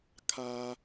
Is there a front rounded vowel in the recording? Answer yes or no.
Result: no